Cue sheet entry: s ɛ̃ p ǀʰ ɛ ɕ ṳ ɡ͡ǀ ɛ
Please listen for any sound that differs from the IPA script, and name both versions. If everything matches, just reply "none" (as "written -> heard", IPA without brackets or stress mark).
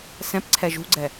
ɕ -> ʒ